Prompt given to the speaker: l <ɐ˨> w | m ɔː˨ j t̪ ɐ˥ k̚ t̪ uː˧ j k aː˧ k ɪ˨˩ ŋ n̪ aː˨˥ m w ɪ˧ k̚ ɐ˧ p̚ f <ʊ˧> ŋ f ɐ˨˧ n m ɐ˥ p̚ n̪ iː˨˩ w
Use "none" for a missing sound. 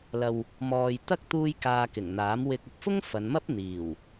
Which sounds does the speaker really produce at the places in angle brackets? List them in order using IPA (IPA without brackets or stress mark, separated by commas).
ɐ˨, ʊ˥